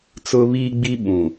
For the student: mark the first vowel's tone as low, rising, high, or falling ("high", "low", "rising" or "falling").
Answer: high